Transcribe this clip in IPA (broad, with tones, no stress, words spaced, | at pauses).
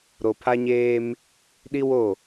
ɾo˨pʰa˦ɲeː˦m | ɗi˦wo˦˨